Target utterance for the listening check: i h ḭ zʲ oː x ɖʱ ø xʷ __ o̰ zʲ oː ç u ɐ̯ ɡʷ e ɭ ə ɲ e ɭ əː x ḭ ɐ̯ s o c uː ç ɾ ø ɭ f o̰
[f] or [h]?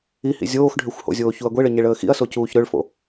h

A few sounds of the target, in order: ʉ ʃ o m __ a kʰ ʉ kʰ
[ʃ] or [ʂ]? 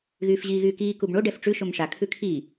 ʂ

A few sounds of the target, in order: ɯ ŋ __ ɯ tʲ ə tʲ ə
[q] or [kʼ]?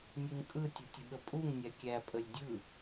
kʼ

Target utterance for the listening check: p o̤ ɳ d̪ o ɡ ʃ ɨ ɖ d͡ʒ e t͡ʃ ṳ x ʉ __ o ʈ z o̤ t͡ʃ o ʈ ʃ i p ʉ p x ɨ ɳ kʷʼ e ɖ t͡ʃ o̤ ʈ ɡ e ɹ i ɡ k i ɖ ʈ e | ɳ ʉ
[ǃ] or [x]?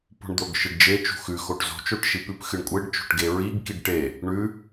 x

